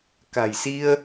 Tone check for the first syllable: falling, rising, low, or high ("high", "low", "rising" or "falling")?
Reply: low